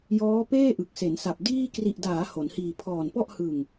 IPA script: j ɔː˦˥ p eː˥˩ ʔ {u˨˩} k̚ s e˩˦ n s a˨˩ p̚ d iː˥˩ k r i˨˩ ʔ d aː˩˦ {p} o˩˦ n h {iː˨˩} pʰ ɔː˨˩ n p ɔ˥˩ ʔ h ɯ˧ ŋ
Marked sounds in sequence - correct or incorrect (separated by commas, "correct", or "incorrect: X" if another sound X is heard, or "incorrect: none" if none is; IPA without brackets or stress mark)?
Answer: incorrect: ɯ˨˩, incorrect: h, incorrect: iː˧